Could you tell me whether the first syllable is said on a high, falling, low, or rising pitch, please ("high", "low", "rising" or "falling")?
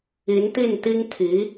rising